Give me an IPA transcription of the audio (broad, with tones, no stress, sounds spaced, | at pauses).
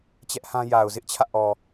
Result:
t͡ɕ ɛ˦ ʔ h ã˦ j a˨ ʊ̯ z ɪ˦ ʔ t͡ɕʰ ä̰˦˨ ʔ ɔ˨